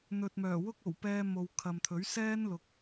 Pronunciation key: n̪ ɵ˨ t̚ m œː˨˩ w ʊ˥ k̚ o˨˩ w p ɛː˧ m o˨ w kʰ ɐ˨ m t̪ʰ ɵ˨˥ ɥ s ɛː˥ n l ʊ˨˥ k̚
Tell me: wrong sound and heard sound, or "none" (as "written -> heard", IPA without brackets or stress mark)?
none